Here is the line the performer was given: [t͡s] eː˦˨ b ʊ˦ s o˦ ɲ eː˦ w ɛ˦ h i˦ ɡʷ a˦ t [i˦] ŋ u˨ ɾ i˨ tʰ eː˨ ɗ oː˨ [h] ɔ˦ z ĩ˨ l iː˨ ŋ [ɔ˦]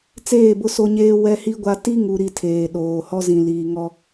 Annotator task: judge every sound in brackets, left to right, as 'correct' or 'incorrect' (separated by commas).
correct, correct, correct, correct